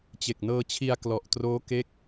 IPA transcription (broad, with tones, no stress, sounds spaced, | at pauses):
t͡ɕ e˨˩ k̚ n ɤː˧ t͡ɕʰ i˧ a̯ k l ɔ˨˩ ʔ t r oː˦˥ k e˥˩ k̚